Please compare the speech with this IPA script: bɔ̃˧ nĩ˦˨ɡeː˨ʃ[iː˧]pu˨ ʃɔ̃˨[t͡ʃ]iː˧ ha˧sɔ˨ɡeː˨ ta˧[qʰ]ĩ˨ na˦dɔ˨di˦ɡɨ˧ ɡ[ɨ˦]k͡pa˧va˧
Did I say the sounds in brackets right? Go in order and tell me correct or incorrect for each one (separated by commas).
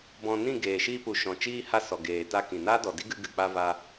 correct, correct, incorrect, incorrect